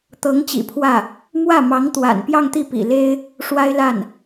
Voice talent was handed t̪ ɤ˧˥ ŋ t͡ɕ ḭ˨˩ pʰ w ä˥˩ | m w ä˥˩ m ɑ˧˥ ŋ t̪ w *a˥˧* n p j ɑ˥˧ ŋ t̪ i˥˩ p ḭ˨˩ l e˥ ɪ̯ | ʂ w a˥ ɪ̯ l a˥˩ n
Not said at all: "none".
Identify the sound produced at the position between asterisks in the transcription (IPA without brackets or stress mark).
a̰˨˩